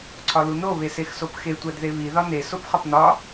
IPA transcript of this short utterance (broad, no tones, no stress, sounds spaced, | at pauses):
ǀʰ ɒ l u n o β e s e x s o p x e tʷ æ d ð e β i ð ɒ n e s o p χ ɒ p n ɒ